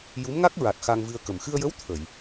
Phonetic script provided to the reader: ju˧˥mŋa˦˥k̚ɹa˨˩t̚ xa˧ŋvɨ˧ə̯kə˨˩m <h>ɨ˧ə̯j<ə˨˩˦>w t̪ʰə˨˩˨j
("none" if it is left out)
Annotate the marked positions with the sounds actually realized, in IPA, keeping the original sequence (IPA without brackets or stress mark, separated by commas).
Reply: x, ə˧˥